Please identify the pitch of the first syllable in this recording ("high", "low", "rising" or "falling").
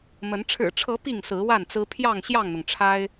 rising